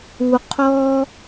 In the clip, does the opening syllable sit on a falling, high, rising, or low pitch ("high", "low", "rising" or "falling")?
low